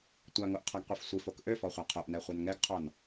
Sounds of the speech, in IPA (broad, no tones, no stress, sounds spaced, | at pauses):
tʷ a ŋ o ʔ qʰ a ɡ qʷ e f sʷ i f o k ʔ ø f ɔ χʷ a qʰ o ʔ n ɛ χʷ ɛ n ŋ ɛ ɡ qʰ ɔ n